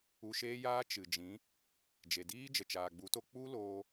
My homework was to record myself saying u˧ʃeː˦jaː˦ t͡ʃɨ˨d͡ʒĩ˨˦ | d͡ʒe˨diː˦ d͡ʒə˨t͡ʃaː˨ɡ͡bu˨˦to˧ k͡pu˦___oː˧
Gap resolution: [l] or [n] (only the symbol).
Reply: l